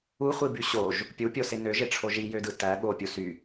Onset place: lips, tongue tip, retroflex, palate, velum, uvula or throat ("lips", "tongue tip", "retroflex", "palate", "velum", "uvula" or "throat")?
uvula